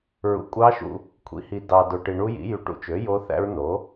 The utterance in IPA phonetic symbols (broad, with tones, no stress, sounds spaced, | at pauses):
ɹ ṵ˨ kʷʼ ɑ˦˥ ʃ ṵ˨ | kʷʰ ḭ˩˥ h i˨ d ɑ˨ d o˨ ʈ i˨ ɳ u˦˥ j ḭ˩˥ j y˨ ʈ ṵ˩˥ t͡ʃ ø˩˥ j o˦˥ θ æ̰˦˥ ɹ n o˩˥